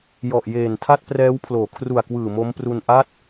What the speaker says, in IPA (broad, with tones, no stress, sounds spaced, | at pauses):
j ɔ˨˩ ʔ j eː˨˩ n tʰ a˥˩ t̚ p r ɛː˦˥ w pʰ l oː˩˦ kʰ r u˨˩ a̯ k w ɯː˨˩ m o˦˥ m p r u˧ n ʔ a˥˩ t̚